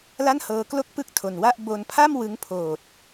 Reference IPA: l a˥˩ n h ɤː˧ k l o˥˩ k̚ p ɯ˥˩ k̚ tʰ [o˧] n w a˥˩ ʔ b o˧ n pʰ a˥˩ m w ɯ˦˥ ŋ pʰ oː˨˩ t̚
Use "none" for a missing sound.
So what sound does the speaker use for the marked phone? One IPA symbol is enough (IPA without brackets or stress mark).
o˧